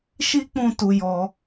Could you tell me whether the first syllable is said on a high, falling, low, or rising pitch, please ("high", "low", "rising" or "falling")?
high